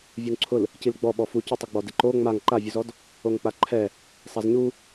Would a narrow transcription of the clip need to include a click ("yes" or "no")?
yes